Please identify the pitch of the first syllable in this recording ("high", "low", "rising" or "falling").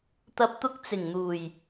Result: low